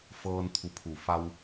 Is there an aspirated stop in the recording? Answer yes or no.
yes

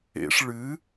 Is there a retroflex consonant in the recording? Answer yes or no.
yes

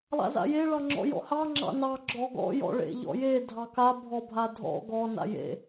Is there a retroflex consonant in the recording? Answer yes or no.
yes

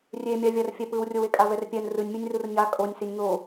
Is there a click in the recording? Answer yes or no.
no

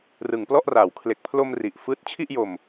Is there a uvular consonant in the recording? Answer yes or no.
no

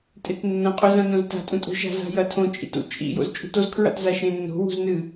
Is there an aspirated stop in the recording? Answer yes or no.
yes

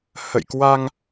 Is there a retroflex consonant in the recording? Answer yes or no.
no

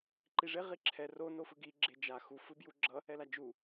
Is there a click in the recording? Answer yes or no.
yes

